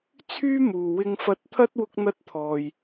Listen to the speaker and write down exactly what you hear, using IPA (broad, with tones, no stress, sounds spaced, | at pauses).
t͡sʰ yː˥ m uː˨ w ɪ˧ ŋ f ɐ˧ t̚ t̪ʰ ɐ˥ t̚ w ʊ˥ k̚ n̪ ɐ˥ t̚ t̪ʰ ɔː˧ j